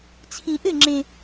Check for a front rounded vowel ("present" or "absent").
absent